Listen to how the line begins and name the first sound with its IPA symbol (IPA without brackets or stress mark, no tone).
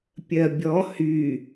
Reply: pʲ